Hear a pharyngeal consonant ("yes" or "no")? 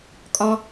no